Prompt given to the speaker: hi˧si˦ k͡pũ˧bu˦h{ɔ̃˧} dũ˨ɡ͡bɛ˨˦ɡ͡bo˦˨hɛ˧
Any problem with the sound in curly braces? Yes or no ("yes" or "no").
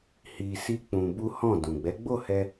yes